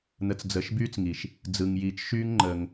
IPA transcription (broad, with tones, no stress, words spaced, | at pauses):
n̪ə˨t͡sd͡zəː˨ʃ byː˦t͡sŋiː˨ʃ | d͡zɯ˨ŋjiː˨t͡ʃ ʃyː˦ŋŋ͡ǃəː˧ŋ